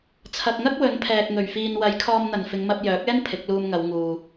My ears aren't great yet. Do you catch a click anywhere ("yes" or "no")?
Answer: no